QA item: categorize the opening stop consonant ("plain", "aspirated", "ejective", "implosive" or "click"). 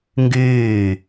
plain